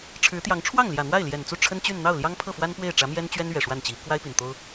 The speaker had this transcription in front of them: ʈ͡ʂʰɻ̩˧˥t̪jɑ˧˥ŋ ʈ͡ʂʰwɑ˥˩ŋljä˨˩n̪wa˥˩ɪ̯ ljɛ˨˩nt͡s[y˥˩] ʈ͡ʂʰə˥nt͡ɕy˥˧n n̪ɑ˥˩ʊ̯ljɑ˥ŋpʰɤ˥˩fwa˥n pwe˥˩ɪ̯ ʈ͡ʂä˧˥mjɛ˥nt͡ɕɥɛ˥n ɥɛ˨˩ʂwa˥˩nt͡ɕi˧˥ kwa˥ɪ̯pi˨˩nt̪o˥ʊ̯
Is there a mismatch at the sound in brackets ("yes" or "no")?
yes